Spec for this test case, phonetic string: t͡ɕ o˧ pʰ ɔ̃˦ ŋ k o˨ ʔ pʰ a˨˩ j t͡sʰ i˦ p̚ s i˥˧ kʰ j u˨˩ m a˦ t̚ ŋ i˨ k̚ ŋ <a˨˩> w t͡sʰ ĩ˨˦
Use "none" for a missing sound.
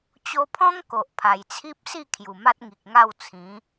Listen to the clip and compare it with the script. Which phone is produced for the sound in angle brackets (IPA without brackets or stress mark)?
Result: a˥˧